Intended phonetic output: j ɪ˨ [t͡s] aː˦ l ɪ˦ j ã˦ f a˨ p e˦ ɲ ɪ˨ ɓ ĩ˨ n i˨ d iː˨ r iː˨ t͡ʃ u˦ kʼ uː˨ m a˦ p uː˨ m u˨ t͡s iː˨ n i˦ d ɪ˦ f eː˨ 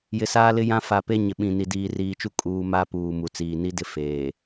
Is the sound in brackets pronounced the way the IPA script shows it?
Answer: no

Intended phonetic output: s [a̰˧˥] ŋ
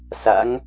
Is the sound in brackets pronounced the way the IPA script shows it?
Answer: yes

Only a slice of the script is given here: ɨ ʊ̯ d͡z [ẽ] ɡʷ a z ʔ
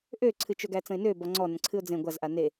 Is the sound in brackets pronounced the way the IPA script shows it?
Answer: yes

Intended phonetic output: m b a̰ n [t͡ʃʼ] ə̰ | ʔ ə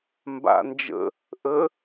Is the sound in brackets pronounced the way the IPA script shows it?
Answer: no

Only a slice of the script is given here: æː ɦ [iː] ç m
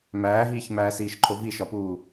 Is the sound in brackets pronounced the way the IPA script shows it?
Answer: yes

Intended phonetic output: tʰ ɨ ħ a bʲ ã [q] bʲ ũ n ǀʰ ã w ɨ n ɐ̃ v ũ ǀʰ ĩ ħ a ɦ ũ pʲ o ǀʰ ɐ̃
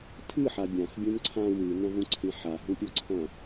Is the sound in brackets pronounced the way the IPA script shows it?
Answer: no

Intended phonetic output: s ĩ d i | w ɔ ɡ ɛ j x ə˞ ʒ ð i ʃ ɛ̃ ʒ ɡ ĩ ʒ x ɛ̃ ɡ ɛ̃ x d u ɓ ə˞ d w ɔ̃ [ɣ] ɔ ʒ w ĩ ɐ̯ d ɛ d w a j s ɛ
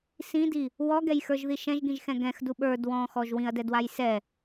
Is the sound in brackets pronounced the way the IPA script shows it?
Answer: no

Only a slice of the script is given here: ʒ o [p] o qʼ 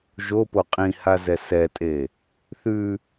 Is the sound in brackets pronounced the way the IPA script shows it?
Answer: yes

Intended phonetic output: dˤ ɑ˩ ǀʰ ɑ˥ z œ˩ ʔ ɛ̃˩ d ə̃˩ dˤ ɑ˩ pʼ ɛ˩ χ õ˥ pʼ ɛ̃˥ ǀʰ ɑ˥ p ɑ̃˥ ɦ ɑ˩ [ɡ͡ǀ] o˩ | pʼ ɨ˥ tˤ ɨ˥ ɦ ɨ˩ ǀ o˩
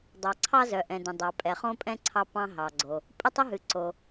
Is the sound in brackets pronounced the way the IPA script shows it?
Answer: yes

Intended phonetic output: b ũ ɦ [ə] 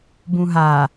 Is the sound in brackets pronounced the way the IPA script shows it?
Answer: no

